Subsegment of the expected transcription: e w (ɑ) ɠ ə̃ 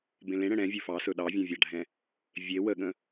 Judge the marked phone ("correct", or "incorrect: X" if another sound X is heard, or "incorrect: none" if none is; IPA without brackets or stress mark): incorrect: ə